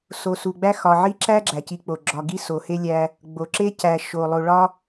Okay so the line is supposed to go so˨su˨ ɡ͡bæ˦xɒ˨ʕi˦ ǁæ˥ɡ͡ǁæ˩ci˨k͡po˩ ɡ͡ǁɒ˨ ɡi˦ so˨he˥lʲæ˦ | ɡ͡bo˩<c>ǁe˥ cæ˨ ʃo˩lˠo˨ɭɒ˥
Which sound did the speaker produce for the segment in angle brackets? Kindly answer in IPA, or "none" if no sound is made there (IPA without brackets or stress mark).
none